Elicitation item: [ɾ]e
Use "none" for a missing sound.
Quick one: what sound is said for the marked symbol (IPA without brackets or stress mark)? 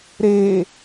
ɾ